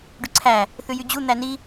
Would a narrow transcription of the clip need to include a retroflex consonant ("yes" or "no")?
yes